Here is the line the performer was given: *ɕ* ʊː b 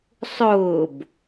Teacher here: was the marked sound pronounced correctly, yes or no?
no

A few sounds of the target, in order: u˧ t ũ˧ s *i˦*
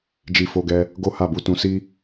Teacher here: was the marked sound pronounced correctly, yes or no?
yes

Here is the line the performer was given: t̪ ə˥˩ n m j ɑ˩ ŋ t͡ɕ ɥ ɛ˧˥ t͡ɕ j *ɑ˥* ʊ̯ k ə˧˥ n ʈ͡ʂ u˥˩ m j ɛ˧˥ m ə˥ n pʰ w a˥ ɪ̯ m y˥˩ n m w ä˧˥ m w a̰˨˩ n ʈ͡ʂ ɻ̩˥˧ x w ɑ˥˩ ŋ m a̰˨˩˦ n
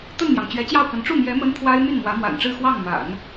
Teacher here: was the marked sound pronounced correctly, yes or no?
no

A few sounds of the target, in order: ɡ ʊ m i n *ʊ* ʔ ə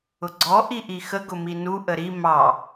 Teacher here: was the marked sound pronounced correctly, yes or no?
no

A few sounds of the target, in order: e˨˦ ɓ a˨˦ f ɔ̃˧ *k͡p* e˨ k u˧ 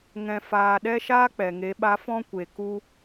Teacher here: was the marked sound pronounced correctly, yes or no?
no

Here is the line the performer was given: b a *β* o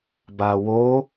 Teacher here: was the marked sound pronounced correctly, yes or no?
no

